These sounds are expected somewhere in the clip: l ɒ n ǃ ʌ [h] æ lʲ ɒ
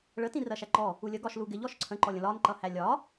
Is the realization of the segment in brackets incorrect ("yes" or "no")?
no